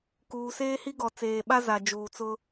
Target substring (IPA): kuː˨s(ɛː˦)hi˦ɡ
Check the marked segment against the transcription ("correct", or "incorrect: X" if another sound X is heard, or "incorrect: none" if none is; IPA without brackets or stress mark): incorrect: eː˦